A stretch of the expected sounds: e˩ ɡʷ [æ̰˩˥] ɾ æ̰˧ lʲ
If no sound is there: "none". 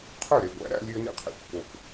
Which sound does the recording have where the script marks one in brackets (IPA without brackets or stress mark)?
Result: æ̰˩˥